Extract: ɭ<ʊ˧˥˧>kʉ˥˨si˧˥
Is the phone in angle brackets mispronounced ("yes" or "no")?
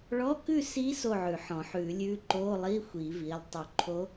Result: yes